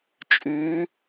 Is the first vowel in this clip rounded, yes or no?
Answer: yes